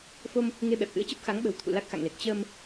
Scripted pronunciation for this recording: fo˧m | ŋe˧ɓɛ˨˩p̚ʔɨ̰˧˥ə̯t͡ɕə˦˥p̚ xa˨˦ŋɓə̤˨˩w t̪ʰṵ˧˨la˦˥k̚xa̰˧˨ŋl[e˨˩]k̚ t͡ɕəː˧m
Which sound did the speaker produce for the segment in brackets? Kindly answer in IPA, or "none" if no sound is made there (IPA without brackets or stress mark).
e˨˩